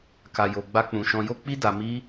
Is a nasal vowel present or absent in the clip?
present